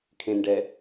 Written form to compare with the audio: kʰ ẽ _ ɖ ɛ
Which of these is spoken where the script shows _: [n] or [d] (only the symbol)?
n